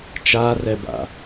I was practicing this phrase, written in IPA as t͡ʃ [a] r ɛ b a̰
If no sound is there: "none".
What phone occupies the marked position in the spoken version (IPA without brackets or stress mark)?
a